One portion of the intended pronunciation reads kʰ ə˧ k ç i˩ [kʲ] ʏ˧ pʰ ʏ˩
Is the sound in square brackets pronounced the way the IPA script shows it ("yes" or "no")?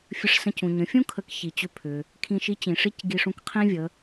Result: no